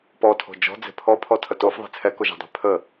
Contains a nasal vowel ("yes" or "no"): no